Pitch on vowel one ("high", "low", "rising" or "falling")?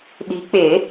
rising